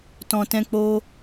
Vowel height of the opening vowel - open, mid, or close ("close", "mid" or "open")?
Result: mid